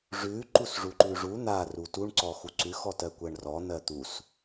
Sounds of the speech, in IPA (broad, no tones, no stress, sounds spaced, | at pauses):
ʐ ʉ ǃ u s ʐ u ǃ ʉ ʐ u n̪ a r u t u ɳ ǀ ɔ x u ǀ ʉ x ɔ t ɜ kʷ ɜ ɳ r ɔ n̪ ɜ t̪ u s